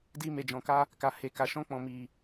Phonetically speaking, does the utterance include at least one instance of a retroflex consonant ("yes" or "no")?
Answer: no